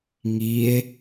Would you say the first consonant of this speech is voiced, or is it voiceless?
voiced